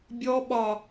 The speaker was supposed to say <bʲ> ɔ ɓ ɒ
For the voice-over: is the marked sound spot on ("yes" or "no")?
yes